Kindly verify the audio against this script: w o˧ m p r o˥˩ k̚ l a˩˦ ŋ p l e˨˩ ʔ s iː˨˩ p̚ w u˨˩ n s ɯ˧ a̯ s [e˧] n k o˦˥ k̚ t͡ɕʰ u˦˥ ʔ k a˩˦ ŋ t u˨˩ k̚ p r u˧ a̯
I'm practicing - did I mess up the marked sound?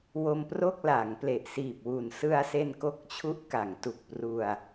no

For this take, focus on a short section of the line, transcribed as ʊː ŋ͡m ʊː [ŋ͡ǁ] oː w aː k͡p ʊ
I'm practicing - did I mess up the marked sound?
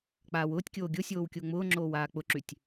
no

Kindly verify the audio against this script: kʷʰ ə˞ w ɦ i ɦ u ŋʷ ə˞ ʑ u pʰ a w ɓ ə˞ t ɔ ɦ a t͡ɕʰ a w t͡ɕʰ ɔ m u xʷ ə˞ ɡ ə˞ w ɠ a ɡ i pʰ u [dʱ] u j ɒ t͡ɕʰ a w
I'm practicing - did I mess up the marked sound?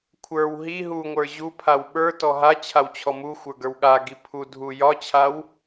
no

